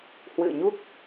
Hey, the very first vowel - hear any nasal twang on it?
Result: no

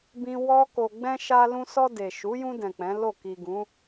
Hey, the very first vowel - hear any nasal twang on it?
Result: yes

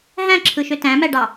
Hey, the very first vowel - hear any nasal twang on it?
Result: yes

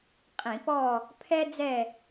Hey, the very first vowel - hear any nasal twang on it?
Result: yes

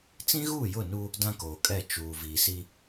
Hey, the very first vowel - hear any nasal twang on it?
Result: yes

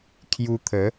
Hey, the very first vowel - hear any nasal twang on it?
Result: no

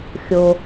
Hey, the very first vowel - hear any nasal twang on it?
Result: no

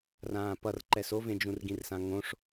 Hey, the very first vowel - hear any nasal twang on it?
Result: yes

